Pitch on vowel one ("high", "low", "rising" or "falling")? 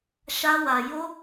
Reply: high